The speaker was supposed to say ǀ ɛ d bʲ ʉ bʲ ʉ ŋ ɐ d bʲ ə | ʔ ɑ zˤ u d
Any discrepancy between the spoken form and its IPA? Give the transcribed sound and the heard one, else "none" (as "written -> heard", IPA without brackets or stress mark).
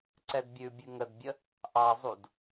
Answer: ɐ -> ə